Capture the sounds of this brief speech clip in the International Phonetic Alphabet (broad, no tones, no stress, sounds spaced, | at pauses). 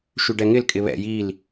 ʃ y ɖ ɛ ŋ ɪ l kʼ ɪ β ɛ̰ j i l